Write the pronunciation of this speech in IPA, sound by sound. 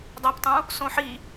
dˤ a p tˤ ũ | s õ ħ i

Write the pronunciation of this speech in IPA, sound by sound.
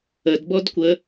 ə d b ɔ d kʷ ə

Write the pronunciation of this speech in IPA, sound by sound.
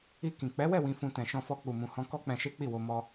i˧ k ĩ˨ k͡p ɛ˨˦ w ɛ˦˨ w ĩ˧ f ũ˧ t ɛ̃˨ ʃ ɔ̃˧ f ɔ˧ k͡p u˨ m ũ˨ h ɔ̃˧ k ɔ˦ k͡p ɛ̃˧ ʃ e˦ k͡p i˦˨ w o˧ m ɔ˧

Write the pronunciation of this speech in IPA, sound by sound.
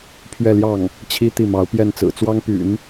pʰ ɥ ɛ˥˧ l j ɑ˥˩ ŋ | t͡ɕʰ i˥ t̪ i˥˩ m ɑ˧˥ ʊ̯ p j ɛ˥˩ n t͡s ɹ̩˨˩ t͡s w ɑ˥ ŋ p y̰˨˩˦ n

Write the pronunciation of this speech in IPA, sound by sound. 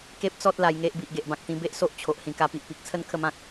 k e˦ p̚ t͡s ɔ˦ t̚ l a˧ j ŋ e˦ ʔ b i˨ ʔ ɡ e˨ ʔ b ã˨ k̚ t̪ ĩ˧ b e˦ ʔ s o˦ ʔ t͡ɕʰ o˨ ʔ h ĩ˨˩ k a˧ p i˨ ʔ p i˨ k̚ t͡sʰ ə˦ n kʰ ə˧ m ã˨ k̚

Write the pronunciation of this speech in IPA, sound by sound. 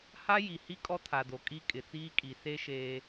h a˦ j i˨ h i˦ kʼ ɔ˦ tʰ a˨ d o˨ kʼ i˦ kʼ ɪ˨ t͡s iː˦ kʼ i˨ s e˦ ʃ eː˦

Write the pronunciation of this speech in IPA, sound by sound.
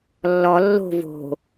lː ɔ lː o̤ v o̤

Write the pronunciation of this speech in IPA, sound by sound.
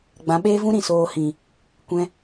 ɡ͡b ã˨˦ ɓ eː˦ v ũ˦ ɾ ĩ˨ s oː˧ h ĩ˨ | kʷ ɛ̃˦

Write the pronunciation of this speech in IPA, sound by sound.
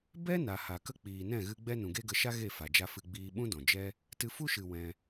b ɛ˦ n a˨ h a˨ k ə˦ k͡p iː˨ n ɛ̃˦˨ ɣ ɨ˧ ɡ͡b ɛ˦ n ũ˨ ɡ e˦ ɡ ə˧ ʃ a˦ ɣ e˦˨ f a˨ d͡ʒ a˧ f ɨ˧ ɡ͡b iː˧ ɓ ũ˦ d ɔ̃˨ d͡ʒ ɛ˦ | t ɨ˧ f u˦ ʃ ɨ˨ w ɛ̃˧

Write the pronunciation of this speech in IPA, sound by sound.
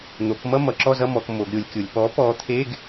n̪ o˩˧ k m ʌ˥˧ m ʌ˩˧ ǁ ɔ˥˧ z ʌ˥˧ m ɔ˩˧ k m o˩˧ ɡ ɾʲ o˩˧ lʲ kʲ o˩˧ lʲ p ɔ˨˥ p ɔ˨˥ t̪ʰ e˧˥˧ ɡ

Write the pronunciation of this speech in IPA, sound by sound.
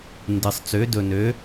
n d ɨ˧ sˤ t͡s ø˧˥ d ɵ˧ n ø˧˥

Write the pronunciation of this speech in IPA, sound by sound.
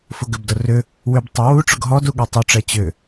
f ʊ ɡ ʏ b d ʊ r ʏ | w ʏ b tˤ ʏ w u ʈ͡ʂ ʊ ɡ ɦ ɔ d u ɠ ɛ tˤ ʏ ʈ͡ʂ ɛ t͡ɕ ʏ

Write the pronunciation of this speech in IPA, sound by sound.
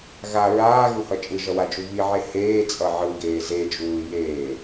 ɣ a ɹ aː ɣ u h ʌ t͡ʃʼ ɯ ʒ ʌ w a d͡ʒ u β i ʕ e h eː t͡sʼ ʌ ʕ ɯ ɡ eː z e d͡ʒ uː j eː

